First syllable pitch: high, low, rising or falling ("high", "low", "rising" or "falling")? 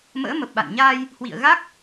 rising